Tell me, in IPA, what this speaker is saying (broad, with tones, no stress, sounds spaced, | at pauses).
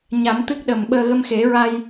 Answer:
ɲ a˨˩˦ m t̪ ɨ˦˥ k̚ ɗ ə˨˩ m ɓ əː˧ ɣ ə˧ m x e˨˩˦ ɹ a˧ j